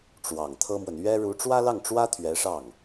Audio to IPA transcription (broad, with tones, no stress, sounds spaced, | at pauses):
ʈ͡ʂ w ɑ˨˩ ŋ t̪ʰ ɤ˥ m w ə˨ n ɥ ɛ˥ ɻ u˧˥ ʈ͡ʂ w ä˥ l ɑ˥˩ ŋ ʈ͡ʂ w ä˥ t̪ʰ ɥ ɛ˧˥ ʂ ɑ˥˩ ŋ